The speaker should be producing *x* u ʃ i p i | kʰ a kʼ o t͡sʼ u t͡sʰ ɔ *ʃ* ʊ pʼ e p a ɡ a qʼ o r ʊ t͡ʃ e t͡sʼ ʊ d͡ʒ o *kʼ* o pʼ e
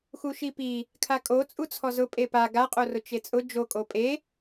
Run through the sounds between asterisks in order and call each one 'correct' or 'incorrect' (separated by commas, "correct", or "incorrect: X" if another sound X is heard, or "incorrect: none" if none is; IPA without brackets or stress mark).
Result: correct, incorrect: z, correct